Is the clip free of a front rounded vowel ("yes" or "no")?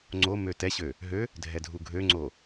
no